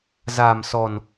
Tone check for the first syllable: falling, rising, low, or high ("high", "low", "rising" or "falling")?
low